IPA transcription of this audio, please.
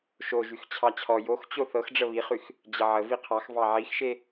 ʃ o ʒ y x t͡ɕʰ ɑ t͡ɕʰ ɔ j o x t͡ɕ o θ ɤ x ɖ͡ʐ ə β i χ y x | d͡ʑ ə ʕ ə v i qʰ ɑ x v ɑ ʕ i x ʃ e

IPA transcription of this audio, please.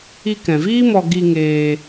i˧ k ɛ̃˨ v iː˦ m ɔ˧ ɡ i˧ ŋ eː˧

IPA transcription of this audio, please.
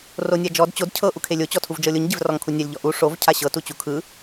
r o nʲ a d͡ʒ ɔ d t͡ɕ o d cʰ ɤ ʔ u kʰ e lʲ o t͡ɕ ɔ tʰ u v d͡ʒ ɤ lʲ o ɲ ɟ e v r ɔ ŋ kʰ u nʲ a lʲ ʎ ɔ ʔ u ʂ o v cʰ a ɕ ɤ t u t͡ɕ u kʰ ɯ

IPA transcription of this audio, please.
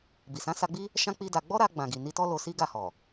b i˨ s ã˨˦ s a˧ ɡ͡b i˦ | ʃ ã˦ k͡p i˦ d a˧ ɡ͡b ɔ˦ ɾ a˧ ɡ͡b ã˨ ɡ i˨ n i˧ t ɔ˦ l o˧ s i˦ ɡ a˦˨ h ɔ˨

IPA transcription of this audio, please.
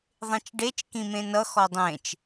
ðˤ ẽ t͡ʃ ɖ e t͡ʃ k ĩ m ẽ n ʌ x ɔ dˤ ẽ t͡ʃ

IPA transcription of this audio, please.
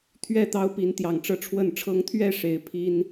t̪ʰ ɥ ɛ˥˨ t̪ ɑ˦ ʊ̯ p i˨˦ n t̪ j ɑ˨˩ ŋ ʈ͡ʂ ɤ˦ ʈ͡ʂʰ w ə˥˨ n ʈ͡ʂʰ ɤ˦ ŋ t̪ʰ ɥ ɛ˥˨ ʂ e˨˩ ɪ̯ pʰ i˦ n

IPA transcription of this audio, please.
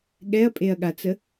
ɠ ɛ ɐ̯ pʼ e ɐ̯ ɠ a t͡s ə

